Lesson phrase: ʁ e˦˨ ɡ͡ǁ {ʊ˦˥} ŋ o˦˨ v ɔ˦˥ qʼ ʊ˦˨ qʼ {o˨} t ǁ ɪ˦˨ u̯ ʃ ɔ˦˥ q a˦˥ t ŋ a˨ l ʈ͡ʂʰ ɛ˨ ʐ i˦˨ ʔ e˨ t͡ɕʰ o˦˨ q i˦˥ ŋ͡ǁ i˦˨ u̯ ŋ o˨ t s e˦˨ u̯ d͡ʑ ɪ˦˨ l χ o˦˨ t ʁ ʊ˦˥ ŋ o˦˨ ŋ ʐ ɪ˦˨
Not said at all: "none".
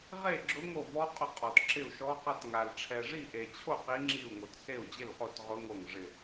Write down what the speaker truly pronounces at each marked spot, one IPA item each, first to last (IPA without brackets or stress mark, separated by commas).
ʊ˦˥, ɔ˨